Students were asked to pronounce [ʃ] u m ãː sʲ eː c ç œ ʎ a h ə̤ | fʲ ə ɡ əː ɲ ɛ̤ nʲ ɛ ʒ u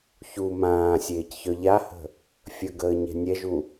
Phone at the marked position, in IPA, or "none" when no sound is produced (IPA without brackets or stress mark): ç